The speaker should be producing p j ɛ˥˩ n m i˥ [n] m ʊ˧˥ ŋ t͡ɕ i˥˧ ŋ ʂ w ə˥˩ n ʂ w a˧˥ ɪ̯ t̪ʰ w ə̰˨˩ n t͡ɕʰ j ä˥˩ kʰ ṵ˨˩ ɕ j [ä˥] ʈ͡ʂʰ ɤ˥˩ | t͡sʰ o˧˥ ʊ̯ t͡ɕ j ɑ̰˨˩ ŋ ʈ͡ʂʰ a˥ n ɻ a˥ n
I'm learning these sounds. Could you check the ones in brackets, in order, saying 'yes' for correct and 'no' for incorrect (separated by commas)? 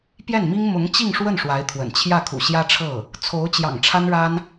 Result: no, yes